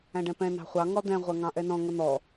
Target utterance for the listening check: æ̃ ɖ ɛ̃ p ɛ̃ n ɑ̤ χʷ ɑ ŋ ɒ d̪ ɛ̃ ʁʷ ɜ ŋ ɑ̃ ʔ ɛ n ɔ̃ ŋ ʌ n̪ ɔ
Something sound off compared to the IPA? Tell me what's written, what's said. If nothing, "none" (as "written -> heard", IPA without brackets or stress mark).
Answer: none